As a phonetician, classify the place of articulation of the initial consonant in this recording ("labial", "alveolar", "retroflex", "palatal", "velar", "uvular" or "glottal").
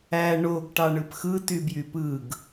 retroflex